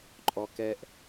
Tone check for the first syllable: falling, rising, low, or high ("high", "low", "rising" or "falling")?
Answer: low